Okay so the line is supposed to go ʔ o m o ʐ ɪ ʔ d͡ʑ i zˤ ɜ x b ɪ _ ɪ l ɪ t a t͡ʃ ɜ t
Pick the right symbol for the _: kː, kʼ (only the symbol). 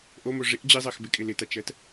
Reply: kʼ